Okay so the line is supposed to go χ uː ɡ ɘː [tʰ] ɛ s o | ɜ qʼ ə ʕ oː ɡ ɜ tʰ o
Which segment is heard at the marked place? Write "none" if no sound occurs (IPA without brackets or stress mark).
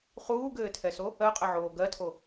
tʰ